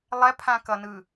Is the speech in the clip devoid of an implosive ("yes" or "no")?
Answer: yes